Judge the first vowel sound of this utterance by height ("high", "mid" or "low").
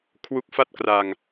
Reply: high